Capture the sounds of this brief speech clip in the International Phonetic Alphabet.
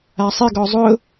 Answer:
asˤɪɡɔ zˤʊ

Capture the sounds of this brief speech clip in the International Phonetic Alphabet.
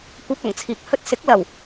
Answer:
kʷɐ˧p̚ɐ˨˩ŋt͡sʰiː˨k̚ hɵ˧t̚sɪ˨˥k̚ lɐ˨˩w

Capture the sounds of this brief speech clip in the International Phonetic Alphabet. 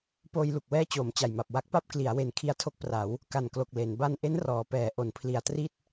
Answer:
poː˧jlu˨˩k̚wɛː˦˥ t͡ɕoː˩˦mt͡ɕa˨˩jma˨˩p̚ wa˦˥k̚pa˥˩p̚ kli˩˦a̯ we˩˦n kʰi˦˥a̯tʰo˦˥k̚pra˩˦w | ka˨˩nklo˨˩k̚ le˩˦n ba˧nʔe˦˥n rɔː˩˦ pɛː˩˦ ʔo˩˦n pʰli˨˩a̯tri˥˩t̚

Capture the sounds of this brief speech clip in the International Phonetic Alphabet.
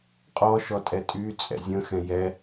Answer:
qʼɔʃɔtʼɛ tʼyt͡sʼɛ̰ zʲə̃xɛ̃ jɛ

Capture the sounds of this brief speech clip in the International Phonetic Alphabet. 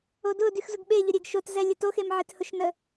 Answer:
odʊdyx zʊɡɓeʎʊɾʲeɡ ʃotzɛ lʲətoxemʕet hʊʃnə

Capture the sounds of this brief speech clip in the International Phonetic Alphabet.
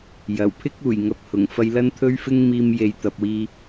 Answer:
jɐ˨˩wpʰɪ˥k̚ uː˨˩jŋɐ˨˥p̚hʊ˨˩ŋ fɐ˧jlɐ˥n t̪ʰɵ˥ɥfɪ˥ŋ miː˧mje˨j t̪ɐ˨p̚wiː˧

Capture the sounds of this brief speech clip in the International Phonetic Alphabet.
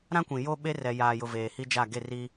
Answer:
ɾã˦kʷĩ˨ jo˦ ɓe˦rɛ˨jaː˨jʊ˨ veː˨hi˦d͡ʒa˦˨ ɡe˦˨ri˦

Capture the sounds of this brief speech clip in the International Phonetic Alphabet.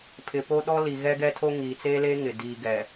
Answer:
pʰɪ˨po˦ɗɔ˦ li˨ɣɛ˦ɡɛ˦tʰo˦ ŋiː˨ t͡seː˦leː˦ ŋɪ˨ diː˨ɡɛ˨

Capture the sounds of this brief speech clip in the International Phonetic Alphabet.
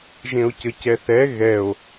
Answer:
ʒẽo̯cəcɛθɛ ɣɛo̯

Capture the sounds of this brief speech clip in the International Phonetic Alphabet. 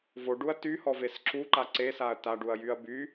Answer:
voɖuɐ̯ tyhɔves ǁuǃa ǀesaɐ̯ taɖuɐ̯jyɐ̯ by

